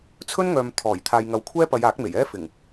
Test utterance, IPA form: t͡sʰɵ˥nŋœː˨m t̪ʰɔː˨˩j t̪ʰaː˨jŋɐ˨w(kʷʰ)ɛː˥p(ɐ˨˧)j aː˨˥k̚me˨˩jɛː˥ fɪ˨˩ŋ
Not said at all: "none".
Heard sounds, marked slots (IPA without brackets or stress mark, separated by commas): kʷʰ, ɐ˨˧